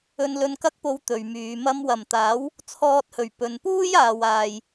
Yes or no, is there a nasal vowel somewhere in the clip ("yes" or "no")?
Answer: no